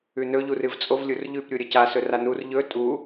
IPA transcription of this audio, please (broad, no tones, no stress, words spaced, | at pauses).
ʉnɵʎu rɨvt͡sʼov lʲurʎʉpɾʲu ɾʲɐca sɵranur ʎɵ tʼu